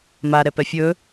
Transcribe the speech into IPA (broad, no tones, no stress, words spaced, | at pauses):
maɾɛpɛ fʲɵ